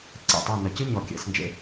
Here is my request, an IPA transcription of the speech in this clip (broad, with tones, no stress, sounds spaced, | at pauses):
ǀ ḛ˨˩ tˤ a˥˨ n ɐ˨˩ c ɨ˥ ɲ ɔ˨˩ kʲ ɛ̰˨˩˦ s n d͡ʒ ḛ˥˨